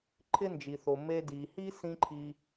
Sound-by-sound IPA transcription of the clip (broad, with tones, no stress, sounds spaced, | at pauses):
ǃʰ ɪ˥ n d͡ʒ i˨ θ o˨ m e˦ d i˨ h i˥ s ĩ˦ ǃʰ i˦